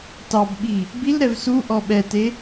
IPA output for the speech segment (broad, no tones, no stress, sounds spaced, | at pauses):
t ɑ b ɓ i | b i l ɾ ɛ v s u ʔ ɔ ɓ ɛ t e